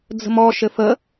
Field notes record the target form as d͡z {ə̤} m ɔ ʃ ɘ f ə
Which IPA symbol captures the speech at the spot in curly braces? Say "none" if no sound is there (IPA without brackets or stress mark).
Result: ə̤